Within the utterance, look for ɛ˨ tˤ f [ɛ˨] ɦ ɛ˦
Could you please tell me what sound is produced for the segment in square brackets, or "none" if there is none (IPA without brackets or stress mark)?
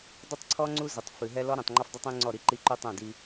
ɨ˨